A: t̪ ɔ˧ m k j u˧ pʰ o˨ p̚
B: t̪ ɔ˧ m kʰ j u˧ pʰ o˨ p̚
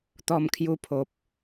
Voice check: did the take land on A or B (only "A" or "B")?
B